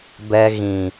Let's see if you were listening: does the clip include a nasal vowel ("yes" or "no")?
yes